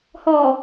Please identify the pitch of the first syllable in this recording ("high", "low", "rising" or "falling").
low